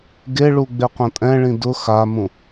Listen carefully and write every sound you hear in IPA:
ɡeɭu ɡ͡beqʷãtʼɛ̃ɭĩ dʊ xamũ

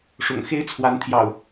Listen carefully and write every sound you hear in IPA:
ʂʊ̰˨˩ŋ xe˦ɪ̯t͡sʰwa˨˦nt̪ʰjɑ̰˨˩ʊ̯

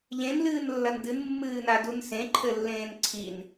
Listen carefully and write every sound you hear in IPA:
ʎẽnlɨːnlːɐn dɨnmːɨːnadun sẽǃʰɘlːẽːn ǀʰin

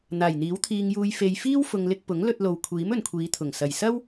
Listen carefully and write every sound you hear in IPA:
n̪aː˨˩jn̪iː˨˥wt̪ʰiː˧ŋjuː˧j fe˨jfiː˥w fʊ˧ŋlɪ˥k̚ pʊ˨˥ŋlɵ˧t̚ lo˨wkʷʰiː˨˥m ɵ˨nkʷʰiː˨˧t̪ʰʊ˨˩ŋ sɐ˨˩jsɐ˥w

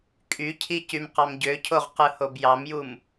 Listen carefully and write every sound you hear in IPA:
kʼycʰi cymqɑmɟøcʰoʁ qɯhobjɑmjum

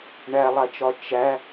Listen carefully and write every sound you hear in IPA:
ɳælˠat͡ʃɒ t͡ʃæ

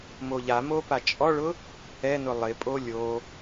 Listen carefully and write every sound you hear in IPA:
moʎamo pat͡ʃʼɔɭʊ | ɛnʊ lˠɪpʼo lʲo

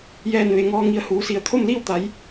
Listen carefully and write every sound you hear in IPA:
jɛː˧˩nʋe˩ŋɔː˧ŋi˧˩ə̯ huː˩˧si˧˩ə̯ t̪ʰo˥˨mli˥˨wt̪a˩˧j

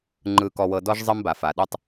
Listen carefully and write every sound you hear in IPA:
ŋ͡ǃɯ˨ kɔ˨wɤ˨dɔ˦ʒ zˤɤ˦mba˨fa˨ ɗɯ˦tˤ

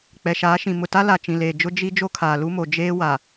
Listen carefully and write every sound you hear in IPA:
k͡pɛ˨ʃaː˨˦ʃĩ˨ mʊ˨ta˦la˨t͡ʃĩ˨ leː˨d͡ʒʊ˦ d͡ʒi˦ d͡ʒo˦kʰaː˨lu˦mo˨ d͡ʒeː˦ wa˨

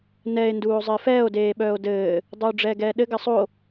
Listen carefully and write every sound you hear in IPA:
nɛe̯ nduːo̯zˤɘːfɛːo̯ deːɓœːo̯dɘː | dˤuːɖ͡ʐɛːɡɛːɗɘ ɡɘsˤo

